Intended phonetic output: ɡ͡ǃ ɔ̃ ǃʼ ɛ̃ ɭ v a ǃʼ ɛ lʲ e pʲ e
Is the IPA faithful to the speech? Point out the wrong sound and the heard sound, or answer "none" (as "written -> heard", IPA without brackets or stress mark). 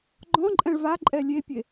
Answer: none